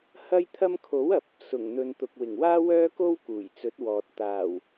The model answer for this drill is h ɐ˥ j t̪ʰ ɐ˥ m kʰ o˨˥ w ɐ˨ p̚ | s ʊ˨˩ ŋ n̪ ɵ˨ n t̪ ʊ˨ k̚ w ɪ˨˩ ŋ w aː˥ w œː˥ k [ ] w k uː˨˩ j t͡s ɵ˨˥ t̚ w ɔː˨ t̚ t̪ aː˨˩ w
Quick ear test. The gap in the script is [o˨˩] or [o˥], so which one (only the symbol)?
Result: o˥